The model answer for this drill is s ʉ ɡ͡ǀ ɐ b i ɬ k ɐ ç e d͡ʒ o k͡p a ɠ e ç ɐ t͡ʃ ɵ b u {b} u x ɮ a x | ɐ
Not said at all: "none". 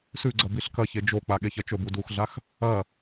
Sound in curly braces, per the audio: d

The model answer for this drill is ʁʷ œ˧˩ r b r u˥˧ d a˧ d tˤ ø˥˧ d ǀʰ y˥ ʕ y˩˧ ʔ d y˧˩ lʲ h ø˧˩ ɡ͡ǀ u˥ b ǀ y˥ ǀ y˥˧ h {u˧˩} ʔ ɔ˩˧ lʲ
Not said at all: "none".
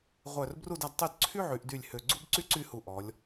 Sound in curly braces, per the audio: u˧˩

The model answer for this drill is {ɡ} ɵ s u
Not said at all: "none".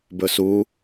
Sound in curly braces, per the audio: b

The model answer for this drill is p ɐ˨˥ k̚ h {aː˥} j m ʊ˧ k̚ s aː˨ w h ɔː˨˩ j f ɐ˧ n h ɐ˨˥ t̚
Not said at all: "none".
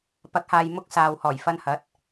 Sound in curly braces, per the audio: aː˨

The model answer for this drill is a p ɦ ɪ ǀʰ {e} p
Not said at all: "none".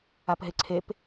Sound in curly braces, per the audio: e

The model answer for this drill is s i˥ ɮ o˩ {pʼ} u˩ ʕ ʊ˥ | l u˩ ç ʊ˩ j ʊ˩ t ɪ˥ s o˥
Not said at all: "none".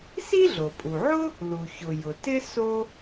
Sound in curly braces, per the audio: pʼ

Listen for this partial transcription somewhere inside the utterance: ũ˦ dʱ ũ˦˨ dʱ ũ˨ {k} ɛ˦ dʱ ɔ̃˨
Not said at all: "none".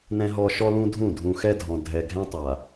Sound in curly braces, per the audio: x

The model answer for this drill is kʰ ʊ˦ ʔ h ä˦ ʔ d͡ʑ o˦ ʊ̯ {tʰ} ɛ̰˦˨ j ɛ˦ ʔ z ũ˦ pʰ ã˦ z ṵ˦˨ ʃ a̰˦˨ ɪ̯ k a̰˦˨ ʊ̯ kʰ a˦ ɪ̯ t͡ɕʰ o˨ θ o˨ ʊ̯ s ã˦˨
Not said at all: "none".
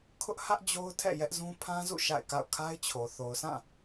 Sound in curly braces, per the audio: tʰ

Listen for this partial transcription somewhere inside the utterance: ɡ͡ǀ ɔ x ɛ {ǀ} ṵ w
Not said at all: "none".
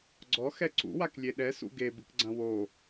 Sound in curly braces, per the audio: ǀ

